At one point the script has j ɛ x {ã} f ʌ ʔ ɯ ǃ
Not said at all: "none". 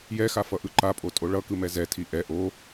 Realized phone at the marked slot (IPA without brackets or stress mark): a